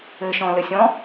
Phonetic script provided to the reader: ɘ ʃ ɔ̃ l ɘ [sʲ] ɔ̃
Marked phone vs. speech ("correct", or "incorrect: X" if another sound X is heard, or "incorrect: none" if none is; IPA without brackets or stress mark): correct